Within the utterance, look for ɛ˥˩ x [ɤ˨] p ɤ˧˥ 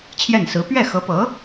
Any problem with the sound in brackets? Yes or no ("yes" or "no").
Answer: yes